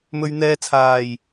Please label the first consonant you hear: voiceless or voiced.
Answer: voiced